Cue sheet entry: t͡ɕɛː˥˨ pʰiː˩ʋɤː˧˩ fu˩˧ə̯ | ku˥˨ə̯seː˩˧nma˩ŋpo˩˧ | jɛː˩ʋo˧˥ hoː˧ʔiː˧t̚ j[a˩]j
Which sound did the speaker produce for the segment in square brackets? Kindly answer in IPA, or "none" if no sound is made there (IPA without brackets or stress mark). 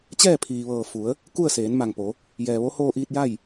a˥˨